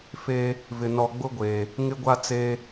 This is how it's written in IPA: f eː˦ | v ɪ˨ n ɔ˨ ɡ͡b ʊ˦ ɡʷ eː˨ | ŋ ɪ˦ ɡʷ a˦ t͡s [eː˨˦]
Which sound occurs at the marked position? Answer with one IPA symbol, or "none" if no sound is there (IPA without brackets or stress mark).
eː˦